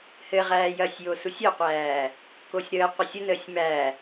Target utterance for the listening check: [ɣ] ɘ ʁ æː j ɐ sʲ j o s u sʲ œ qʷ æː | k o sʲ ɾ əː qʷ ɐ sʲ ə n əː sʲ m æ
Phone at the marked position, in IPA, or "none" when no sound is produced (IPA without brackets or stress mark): h